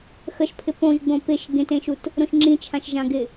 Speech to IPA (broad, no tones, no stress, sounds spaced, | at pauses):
x ə ʃ pʰ ɪ p õ ʒ ɡ͡b õ p ɪ ʃ ɡ ẽ t ẽ ʃ u t | ɾ õ ʃ ŋ͡ǁ ĩ t͡ʃʰ ã ʃ ʒ ã ɡ ɪ